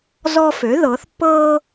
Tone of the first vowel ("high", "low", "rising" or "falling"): high